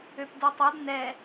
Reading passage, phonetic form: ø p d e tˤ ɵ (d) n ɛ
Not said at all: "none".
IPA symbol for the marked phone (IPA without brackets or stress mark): d